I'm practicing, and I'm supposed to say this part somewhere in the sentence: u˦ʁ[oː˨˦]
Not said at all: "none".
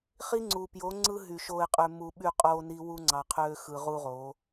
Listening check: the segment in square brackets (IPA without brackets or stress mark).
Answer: oː˨˦